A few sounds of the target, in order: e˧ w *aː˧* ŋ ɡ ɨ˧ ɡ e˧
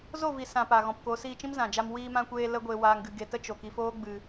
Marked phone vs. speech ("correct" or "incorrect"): correct